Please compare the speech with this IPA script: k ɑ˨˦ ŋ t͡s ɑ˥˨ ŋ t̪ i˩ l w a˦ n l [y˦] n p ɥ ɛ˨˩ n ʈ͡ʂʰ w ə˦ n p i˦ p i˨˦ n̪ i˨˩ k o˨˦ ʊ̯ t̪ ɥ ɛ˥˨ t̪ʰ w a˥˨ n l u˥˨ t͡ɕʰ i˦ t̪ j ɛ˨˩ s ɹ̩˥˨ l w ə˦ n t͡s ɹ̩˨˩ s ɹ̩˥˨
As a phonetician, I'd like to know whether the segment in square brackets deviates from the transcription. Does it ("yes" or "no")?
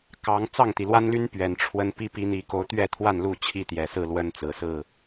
no